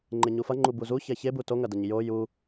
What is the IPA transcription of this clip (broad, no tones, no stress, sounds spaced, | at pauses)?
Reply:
ŋ͡ǃ e ɲ u f ɐ ŋ͡ǃ u b u z u ç ɛ ç e b u t o ŋ ɐ d ɐ ɲ j o j u